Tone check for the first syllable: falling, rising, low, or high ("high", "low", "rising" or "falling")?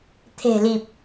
low